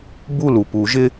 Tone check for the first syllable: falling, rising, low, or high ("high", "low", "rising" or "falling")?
falling